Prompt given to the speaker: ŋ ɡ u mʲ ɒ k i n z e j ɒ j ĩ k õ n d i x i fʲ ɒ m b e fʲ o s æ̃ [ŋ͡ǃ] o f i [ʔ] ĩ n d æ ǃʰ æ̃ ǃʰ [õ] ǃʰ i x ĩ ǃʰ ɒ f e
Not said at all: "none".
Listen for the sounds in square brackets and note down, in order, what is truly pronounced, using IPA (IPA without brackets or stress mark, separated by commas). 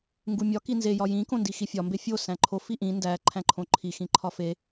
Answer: ǃʰ, ʔ, õ